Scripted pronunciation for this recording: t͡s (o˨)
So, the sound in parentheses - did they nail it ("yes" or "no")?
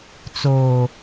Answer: no